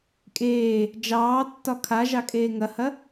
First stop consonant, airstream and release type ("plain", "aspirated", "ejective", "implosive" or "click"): ejective